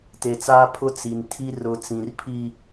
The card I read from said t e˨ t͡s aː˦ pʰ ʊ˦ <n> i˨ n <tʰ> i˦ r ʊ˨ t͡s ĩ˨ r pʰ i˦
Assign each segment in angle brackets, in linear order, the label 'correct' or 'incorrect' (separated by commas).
incorrect, correct